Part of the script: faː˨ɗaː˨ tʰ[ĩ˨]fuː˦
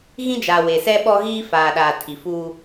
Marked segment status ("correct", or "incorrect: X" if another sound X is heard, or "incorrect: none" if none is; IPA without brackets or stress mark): incorrect: i˨